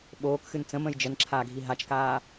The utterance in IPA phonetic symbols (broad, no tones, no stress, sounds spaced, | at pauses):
ɓ oː k x ɨ n t͡s ə̃ m ə̃ j d͡ʒ ə n ǁʰ aː ɡʱ i ɦ a t͡ʃ k aː